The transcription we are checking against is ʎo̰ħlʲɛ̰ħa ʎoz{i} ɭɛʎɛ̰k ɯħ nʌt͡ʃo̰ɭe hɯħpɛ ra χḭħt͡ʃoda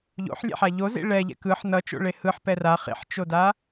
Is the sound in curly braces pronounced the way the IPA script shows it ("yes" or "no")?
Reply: no